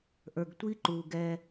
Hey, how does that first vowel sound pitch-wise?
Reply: low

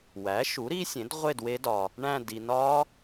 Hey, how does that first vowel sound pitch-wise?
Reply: rising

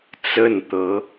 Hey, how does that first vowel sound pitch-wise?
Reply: falling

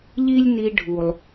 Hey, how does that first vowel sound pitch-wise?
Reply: high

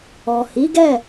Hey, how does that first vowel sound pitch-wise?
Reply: low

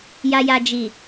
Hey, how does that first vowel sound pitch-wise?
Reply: low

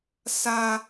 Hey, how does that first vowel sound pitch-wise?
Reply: high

